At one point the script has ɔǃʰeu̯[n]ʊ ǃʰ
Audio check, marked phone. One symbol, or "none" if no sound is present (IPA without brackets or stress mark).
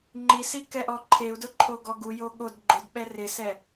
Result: d